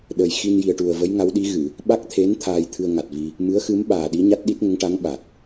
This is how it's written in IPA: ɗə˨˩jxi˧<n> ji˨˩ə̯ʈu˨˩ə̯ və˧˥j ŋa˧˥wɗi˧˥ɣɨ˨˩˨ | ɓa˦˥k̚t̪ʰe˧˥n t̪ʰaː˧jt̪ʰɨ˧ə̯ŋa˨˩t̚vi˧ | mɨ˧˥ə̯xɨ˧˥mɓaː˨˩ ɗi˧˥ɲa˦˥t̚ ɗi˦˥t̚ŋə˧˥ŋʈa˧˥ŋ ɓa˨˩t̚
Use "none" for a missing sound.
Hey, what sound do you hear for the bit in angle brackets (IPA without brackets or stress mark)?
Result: n